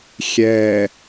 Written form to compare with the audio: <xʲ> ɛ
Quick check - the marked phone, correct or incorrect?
correct